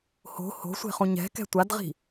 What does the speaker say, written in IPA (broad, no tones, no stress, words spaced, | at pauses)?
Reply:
ho̤ ho̤sʷe̤χũ ɲɛ̤kɛ̤ tʷadʁi̤